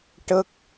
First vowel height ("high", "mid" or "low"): mid